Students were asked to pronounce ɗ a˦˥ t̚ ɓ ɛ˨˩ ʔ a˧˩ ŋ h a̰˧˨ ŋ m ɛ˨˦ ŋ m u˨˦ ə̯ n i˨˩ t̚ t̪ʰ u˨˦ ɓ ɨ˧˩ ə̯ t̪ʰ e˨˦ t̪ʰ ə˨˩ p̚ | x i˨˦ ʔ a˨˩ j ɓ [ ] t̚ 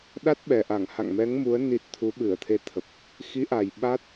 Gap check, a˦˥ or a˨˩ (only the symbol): a˦˥